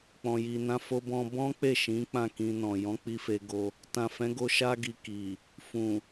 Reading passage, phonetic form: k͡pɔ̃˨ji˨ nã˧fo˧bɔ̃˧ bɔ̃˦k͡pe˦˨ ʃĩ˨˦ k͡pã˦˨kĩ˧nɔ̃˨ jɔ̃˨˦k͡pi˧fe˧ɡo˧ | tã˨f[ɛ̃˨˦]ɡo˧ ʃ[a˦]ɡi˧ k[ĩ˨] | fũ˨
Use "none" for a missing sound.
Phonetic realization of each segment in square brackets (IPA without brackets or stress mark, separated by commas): ɛ̃˨˦, a˦, i˨